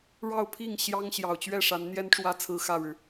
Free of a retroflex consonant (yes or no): no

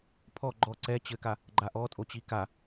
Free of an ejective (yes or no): no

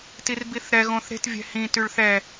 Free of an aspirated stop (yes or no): yes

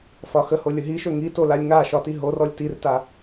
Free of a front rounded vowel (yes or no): yes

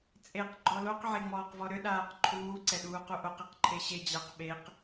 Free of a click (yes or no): no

